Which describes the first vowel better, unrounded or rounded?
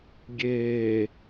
unrounded